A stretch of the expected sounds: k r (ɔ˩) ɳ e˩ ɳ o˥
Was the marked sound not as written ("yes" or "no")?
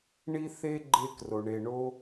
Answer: yes